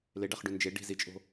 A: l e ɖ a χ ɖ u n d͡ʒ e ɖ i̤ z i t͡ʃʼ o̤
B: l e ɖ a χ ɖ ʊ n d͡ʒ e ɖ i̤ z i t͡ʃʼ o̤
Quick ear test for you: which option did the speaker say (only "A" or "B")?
A